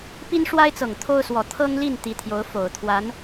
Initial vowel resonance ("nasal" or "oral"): oral